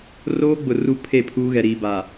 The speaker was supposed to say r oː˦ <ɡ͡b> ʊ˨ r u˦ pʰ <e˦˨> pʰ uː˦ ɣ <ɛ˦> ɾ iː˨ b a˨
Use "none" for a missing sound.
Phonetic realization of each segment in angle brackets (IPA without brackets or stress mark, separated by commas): ɡ͡b, e˦˨, ɛ˨